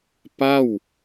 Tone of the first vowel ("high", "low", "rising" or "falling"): falling